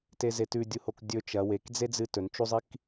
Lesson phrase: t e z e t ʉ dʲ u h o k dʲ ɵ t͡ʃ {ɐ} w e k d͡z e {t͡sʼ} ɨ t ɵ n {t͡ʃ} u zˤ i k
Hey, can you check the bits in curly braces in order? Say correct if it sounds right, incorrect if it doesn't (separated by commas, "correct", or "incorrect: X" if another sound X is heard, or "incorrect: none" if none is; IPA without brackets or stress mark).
correct, incorrect: d͡z, correct